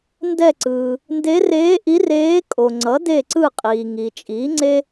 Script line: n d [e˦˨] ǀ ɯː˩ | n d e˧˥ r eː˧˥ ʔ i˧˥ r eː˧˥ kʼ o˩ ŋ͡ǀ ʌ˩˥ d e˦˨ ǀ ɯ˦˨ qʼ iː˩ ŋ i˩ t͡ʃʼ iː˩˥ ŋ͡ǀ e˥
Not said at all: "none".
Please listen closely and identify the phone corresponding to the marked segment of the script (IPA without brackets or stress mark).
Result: ɛ˦˨